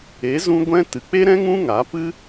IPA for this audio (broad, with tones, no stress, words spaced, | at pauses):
e˨˦zũ˧ ɡʷɛ̃˧ tɨ˨k͡pe˦ɾɛ̃˦ ŋũ˦ŋa˨˦pɨ˦